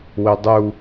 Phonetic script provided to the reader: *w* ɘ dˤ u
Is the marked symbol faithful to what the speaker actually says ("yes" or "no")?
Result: yes